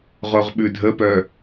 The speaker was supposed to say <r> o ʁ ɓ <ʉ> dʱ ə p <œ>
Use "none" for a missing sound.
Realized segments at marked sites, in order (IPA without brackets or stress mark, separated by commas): ʁ, ʉ, œ